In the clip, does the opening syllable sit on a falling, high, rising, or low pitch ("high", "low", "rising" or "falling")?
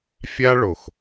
high